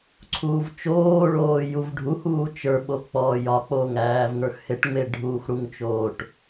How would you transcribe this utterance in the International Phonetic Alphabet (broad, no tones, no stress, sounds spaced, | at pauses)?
ǀʰ uː v t͡ʃ oː ɭ oː j u v ɖʱ u h uː t͡ʃ ə˞ ɓ o x k͡p ɔː j ɒ k͡p oː ŋ æː v ŋ ə˞ x h e ʈ ŋ͡m e ɖʱ uː x ɽ u ŋ t͡ʃ oː ʈ